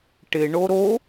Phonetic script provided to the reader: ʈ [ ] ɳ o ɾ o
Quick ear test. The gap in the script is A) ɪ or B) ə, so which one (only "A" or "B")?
A